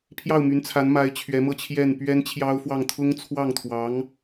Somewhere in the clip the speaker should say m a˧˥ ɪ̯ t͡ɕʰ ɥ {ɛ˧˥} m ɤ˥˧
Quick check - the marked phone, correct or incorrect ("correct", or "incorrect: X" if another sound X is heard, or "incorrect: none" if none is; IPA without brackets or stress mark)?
correct